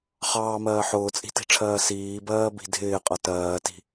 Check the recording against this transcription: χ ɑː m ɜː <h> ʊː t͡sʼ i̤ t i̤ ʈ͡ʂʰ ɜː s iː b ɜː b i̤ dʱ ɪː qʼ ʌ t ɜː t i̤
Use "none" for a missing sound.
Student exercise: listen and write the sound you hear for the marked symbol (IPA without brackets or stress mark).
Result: ħ